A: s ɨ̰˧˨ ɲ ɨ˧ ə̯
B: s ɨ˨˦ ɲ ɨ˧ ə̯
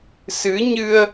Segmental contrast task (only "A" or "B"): B